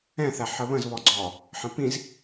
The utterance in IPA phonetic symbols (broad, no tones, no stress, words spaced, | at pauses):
ɛ̃θæ ħəβə̃zβɔɡ͡ǀɔː | ħə̃pĩz